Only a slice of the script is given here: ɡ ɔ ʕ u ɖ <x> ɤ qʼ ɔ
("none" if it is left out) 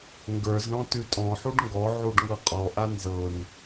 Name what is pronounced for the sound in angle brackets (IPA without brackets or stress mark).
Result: ŋ